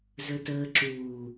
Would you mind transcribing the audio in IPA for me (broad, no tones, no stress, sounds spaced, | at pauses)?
z ɵ t əː ǁ uː